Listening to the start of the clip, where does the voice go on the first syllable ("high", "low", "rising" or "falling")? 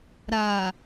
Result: low